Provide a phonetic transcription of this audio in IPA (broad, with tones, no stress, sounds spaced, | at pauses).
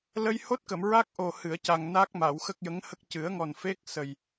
l ə˧ j h o˦˥ t̚ k ə˨˩˨ m ɹ a˦˥ k̚ ʔ o˨˩ h ɨ˨˩˨ ə̯ c a˨˩ ŋ n a˦˥ k̚ m a˨˩˨ w x ə˦˥ k̚ j ə˧˥ ŋ h ə˦˥ k̚ c ɨ˨˩˦ ə̯ ŋ ɔ˨˩ n f e˦˥ k̚ s ə˨˩ j